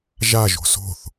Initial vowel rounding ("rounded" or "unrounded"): unrounded